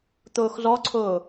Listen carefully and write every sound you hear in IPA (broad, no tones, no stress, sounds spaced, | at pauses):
t̪ ʊː x z ɔ ǀʰ ʊː